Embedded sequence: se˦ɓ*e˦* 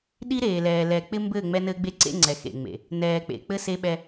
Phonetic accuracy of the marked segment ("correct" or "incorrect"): incorrect